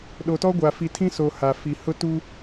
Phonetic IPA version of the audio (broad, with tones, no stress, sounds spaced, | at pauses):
ɗ o˨ t ɔ˦ ɡʷ a˨ f i˨ tʰ ĩ˦ s o˨ h a˨ f i˨ h ʊ˦ t u˦